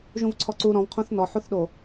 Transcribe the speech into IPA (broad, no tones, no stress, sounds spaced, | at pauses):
ʒ ũ v ǀʰ ɔ ǀ u ɾ ɔ̃ v qʰ õ θ n ɔ ħ u θ ɗ o